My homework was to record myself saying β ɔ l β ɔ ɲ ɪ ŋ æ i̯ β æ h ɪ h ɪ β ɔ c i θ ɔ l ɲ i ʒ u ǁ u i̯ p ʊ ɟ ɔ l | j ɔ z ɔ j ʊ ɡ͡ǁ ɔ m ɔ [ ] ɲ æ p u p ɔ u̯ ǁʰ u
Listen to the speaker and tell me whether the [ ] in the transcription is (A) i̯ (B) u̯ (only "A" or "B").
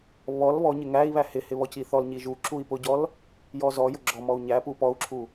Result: B